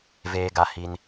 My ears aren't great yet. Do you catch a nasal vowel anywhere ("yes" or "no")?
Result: no